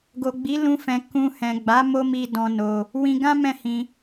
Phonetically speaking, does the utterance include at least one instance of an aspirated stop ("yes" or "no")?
no